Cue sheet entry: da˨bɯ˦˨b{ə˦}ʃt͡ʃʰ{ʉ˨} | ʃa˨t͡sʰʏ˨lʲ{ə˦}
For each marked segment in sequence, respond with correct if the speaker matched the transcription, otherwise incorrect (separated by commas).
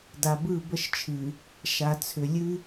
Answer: correct, incorrect, incorrect